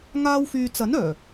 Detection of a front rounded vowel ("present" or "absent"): present